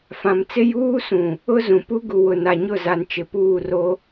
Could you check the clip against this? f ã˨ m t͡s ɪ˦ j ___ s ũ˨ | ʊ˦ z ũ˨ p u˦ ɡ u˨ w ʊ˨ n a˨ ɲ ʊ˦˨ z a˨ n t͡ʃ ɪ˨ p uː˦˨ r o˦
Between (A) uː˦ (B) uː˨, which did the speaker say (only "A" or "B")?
A